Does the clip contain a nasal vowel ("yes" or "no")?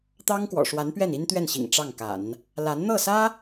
no